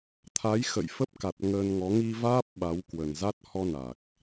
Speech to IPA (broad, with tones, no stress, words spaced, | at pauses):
t̪ʰa˨˦j xə̰˧˨jfə˦˥p̚ka˨˩t̚ ŋəː˧nŋɔ˨˦ ŋi˧vaː˦˥p̚ ɓa˨˦wkwə˨˩nza˦˥t̚ hɔ˧ na˨˩k̚